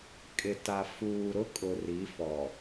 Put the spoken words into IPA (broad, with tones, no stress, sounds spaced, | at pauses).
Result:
kʼ ɪ˨ t a˨ f uː˨ ɾ ʊ˦ kʼ ʊ˨ r i˨˦ f ɔ˨